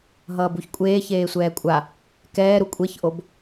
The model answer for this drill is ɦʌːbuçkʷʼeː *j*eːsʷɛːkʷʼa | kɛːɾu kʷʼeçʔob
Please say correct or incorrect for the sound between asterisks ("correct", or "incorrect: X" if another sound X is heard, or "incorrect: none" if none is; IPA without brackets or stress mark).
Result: incorrect: ç